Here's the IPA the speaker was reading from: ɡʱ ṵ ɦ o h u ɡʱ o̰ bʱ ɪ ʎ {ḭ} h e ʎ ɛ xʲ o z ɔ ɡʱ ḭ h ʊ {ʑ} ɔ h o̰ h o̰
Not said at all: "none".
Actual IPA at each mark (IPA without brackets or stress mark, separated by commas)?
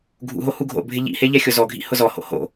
ḭ, z